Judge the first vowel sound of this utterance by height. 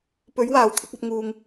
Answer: mid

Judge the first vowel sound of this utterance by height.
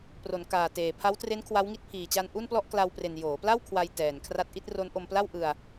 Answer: mid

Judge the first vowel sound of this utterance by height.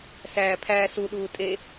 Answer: low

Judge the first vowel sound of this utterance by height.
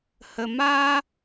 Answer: mid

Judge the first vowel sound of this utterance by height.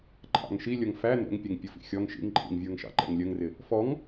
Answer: low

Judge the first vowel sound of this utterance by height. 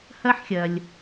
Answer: low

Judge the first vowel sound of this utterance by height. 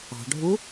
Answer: low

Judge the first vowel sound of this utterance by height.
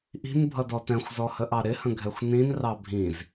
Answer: high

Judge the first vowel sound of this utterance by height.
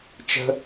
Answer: mid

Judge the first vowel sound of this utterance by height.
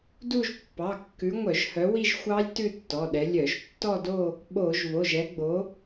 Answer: high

